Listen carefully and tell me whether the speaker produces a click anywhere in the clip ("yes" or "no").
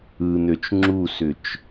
yes